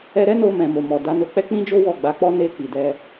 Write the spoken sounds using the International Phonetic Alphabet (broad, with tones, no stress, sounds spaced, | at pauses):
ɛ˧ ɾ ɛ˦ n o˧ m ɛ̃˨ m o˨ m ɔ˨ d a˨˦ n o˧ k͡p ɛ˦ k͡p ĩ˦ d͡ʒ o˦ w ɔ˦˨ ɡ͡b a˨˦ k͡p ɔ˦ n e˧ k͡p i˨ d ɛ˧